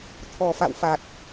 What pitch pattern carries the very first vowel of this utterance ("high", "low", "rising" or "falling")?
low